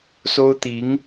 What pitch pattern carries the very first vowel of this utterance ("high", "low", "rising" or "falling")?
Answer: high